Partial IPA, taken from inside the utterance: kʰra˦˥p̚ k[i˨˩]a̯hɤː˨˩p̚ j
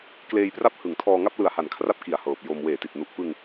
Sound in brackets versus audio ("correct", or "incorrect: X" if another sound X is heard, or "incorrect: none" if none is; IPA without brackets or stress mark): correct